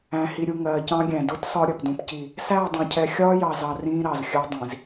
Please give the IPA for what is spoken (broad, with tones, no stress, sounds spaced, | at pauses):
æ̃˨ h i˨ ɾʲ u˨ ŋ ɜː˨ c ɑ̃˦ ɡʲ æ̃˨ d ʊ˦ t s ɒ˦ ɾʲ ʌ˨ p d ũ˦ p c i˦˨ | s æː˦˨ dˤ ɑ̃˨ cʰ ɛ˨ xʲ ɒː˦ j ɑ˨ z ɑ˨ r ĩː˦ ɾ ɑ˨ z xʲ ɜ˦ dˤ ĩ˨ z